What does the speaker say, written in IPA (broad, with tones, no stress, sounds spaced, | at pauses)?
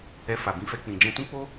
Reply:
ɛ˧ f a˨ b ĩ˧ f ɛ˧ k͡p ĩ˨ d͡ʒ ɛ̃˧ t ũ˦ k͡p o˦